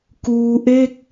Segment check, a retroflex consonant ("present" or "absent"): absent